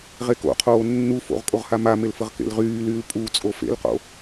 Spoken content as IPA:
ʁ e k o̰ qʰ oː nː u f o̰ ʁ kʼ o ʁ h a m a m e l f ə ʁ k ḛ l ʁ yː l yː l pʼ u t͡sʼ o f ḛ l q o̰

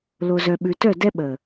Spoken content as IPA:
l o˨ z œ˨ ɓ ʉ˨ t œ˦˨ d ɛ˦ ɓ əː˨

